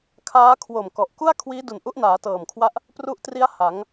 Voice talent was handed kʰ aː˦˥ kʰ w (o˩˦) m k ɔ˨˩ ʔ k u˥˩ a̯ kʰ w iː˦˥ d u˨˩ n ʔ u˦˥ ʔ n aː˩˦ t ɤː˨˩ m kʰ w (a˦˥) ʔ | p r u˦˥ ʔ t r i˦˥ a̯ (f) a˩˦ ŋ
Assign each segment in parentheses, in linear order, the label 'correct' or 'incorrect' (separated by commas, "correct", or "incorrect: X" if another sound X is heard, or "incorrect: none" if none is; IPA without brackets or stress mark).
incorrect: o˨˩, correct, incorrect: h